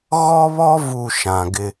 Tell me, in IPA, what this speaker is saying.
ɣ ɔ˦ β ɔ˦ v u˦˨ ʃ ã˨ ɡ ɪ˦

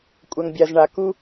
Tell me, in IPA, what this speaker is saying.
kʷʼ ɐ˨ ŋ bʲ a˨ z ɳ a˨ k u˦

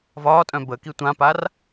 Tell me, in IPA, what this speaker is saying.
v ɒː tʼ œ̃ b ə k i tʷ ã p a r

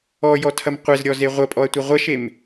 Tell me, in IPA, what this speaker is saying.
ɔ j ɔ tʰ ɐ m qʷ e z ɾʲ ɔ z e ʁʷ ɐ pʼ ɔ ɐ̯ tʷ ɐ ʁʷ ɐ ʃ e m

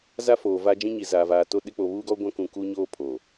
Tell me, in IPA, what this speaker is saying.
z a˦ f oː˨ v a˦ d͡ʒ ĩ˦ ɲ i˨ z aː˨ v aː˨ t o˦ ɗ ɪ˦ k͡p o˨ β uː˦ ɡ ɔ˦ ɡʷ ã˦ k ũ˨ k uː˦ ɲ oː˦ pʰ o˨

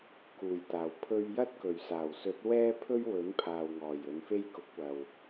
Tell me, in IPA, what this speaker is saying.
k uː˨˩ j t̪ aː˨˩ w pʰ ɵ˥ ɥ j ɐ˥ t̚ k ɵ˨˩ ɥ s aː˨˩ w s ɵ˨˥ t̚ w ɛː˥ pʰ ɵ˥ ɥ w ɵ˨˥ n pʰ aː˨ w ŋ ɔː˨˩ j ɵ˨˧ n f e˥ j k ʊ˨˥ k̚ w ɐ˨ w

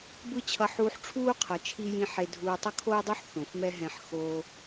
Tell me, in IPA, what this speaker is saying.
b ɯ˥ t͡ɕʰ ʌ˧ ħ uː˧ ħ ʈ͡ʂʰ uː˥ qʰ ʌ˩ t͡ʃʰ i˧ j ĩ˧ ħ e˧ dʱ uː˧ tˤ ʌ˥ kʰ oː˥ dˤ u˥ ħ θ õ˩ f m ɛ˥ ɦ ɛ̃˧ ħ x oː˧

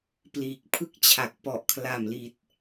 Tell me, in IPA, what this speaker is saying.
p l iː˨˩ k̚ pʰ ɯ˥˩ k̚ t͡ɕʰ a˨˩ k̚ p ɔ˨˩ ʔ kʰ l a˨˩ m l i˨˩ t̚

